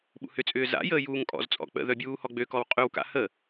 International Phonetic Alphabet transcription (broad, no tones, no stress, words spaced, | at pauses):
ɓṵhʏt͡sʼʏː za̰jəː juːŋkʼɔ̰zt͡sʼɔ̰ k͡pə̰ðœ bʲuːhɔɡ͡bøkɔw qʼywka̰ hə